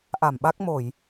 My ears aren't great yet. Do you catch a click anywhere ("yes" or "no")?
no